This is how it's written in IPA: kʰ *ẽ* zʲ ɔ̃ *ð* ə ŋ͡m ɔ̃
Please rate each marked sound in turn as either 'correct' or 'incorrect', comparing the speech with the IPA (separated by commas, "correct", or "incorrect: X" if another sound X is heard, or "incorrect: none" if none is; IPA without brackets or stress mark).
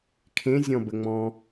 correct, incorrect: b